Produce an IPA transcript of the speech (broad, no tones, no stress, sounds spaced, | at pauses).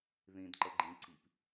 ð ĩ d ǃ ə ɡ͡ǃ ĩ ǀ i p